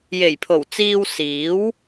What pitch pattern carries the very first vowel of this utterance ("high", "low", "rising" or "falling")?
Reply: low